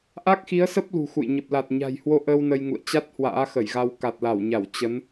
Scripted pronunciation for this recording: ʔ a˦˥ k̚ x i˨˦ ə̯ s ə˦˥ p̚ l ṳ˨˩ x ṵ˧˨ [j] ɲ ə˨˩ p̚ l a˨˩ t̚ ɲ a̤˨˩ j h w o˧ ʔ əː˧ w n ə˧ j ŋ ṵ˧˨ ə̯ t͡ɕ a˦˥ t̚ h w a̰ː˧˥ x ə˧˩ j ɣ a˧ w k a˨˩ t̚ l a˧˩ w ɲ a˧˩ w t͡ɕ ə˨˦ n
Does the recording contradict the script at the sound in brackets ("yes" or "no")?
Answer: no